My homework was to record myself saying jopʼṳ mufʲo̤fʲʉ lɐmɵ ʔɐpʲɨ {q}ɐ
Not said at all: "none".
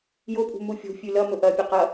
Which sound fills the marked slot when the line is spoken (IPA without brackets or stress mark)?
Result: q